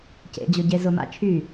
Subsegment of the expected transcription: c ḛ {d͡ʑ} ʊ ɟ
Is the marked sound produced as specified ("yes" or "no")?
yes